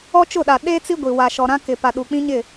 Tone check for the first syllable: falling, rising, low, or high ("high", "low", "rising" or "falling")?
high